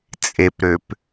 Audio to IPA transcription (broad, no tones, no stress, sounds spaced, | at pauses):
t͡sʼ e p ɾ ø p